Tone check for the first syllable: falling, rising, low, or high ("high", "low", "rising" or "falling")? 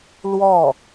falling